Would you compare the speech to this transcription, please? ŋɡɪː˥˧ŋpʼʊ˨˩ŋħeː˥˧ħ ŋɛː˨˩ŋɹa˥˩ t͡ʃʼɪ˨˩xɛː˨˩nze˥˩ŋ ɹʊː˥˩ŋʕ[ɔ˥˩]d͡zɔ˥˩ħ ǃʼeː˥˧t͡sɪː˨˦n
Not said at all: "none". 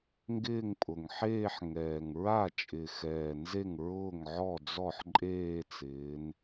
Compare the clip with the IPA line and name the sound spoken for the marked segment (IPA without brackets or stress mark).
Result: ɔ˥˩